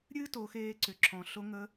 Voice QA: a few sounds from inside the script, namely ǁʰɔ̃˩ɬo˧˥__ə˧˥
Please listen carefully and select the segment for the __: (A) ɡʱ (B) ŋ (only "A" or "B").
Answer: B